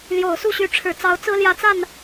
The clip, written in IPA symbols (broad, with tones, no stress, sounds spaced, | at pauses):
l j o˨˩ ʊ̯ s u˥˩ ɕ y˧˥ ʈ͡ʂʰ ɻ̩˨˩ t͡s ɑ˧˥ ʊ̯ t͡s ɹ̩˥ l j ä˧˥ t͡s a˥˩ n